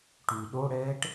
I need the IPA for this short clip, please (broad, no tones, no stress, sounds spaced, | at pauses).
ʈ y ɗ o ɽ ɛː ʈ